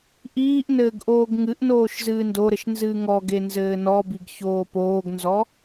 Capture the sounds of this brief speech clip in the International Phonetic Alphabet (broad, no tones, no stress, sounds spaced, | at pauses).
ʔ iː ʔ n ɘː ɡ ʔ oː ɡ ŋ ɨ ʔ n oː ʃ z ɨː n d o ɾ ɘ ʃ n z ɨː ŋ ɔ ɡ e n z ɘː n ɔ b i ɡ ç oː p oː ɡ n z ɔ